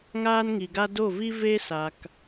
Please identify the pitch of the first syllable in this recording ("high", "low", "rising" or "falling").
high